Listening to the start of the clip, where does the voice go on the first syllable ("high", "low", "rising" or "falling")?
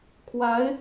rising